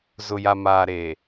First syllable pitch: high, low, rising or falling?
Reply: low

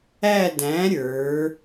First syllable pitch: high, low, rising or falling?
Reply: falling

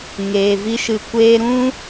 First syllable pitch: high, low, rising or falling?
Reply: low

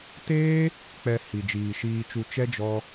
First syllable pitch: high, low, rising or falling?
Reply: high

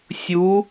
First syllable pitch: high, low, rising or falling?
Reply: rising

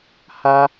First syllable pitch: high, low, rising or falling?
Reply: high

